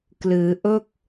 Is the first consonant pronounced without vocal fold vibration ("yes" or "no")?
yes